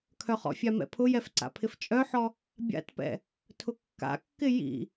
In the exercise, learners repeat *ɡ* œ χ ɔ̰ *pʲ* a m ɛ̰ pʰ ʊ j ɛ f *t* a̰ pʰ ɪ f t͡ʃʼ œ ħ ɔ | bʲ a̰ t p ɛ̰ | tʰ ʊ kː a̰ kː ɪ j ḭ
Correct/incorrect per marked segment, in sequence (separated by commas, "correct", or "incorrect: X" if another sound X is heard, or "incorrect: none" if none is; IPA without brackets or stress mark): incorrect: kʰ, incorrect: fʲ, incorrect: ǀ